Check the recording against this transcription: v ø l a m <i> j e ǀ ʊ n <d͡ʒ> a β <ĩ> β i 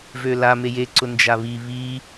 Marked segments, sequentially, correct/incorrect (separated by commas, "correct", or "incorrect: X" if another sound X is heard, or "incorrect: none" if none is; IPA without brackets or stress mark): incorrect: e, correct, incorrect: i